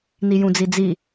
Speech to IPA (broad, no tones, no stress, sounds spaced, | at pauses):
n i j ũ d͡z i d͡z i